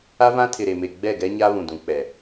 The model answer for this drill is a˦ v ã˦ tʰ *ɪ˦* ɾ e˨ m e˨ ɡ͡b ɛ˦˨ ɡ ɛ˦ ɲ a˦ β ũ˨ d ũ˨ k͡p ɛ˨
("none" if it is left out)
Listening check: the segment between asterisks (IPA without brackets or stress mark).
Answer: ɪ˨